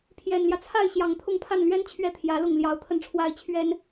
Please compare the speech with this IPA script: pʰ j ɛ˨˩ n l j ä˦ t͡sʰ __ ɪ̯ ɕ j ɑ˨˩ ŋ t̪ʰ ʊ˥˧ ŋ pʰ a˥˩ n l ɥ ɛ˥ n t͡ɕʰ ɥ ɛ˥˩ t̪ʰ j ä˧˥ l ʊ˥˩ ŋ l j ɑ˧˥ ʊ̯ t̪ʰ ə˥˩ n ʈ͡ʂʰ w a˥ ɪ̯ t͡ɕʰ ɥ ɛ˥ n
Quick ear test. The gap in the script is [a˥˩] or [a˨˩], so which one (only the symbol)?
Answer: a˥˩